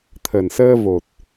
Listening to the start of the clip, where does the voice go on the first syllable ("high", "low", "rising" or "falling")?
low